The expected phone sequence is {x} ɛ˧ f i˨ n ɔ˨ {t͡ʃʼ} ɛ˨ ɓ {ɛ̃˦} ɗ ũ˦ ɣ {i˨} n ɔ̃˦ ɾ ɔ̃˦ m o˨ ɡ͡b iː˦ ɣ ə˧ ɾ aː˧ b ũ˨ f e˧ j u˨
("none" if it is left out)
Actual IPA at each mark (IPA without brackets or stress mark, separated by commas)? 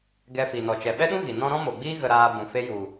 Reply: ɡ, t͡ʃ, ɛ˦, i˨